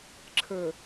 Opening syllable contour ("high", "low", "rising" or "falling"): low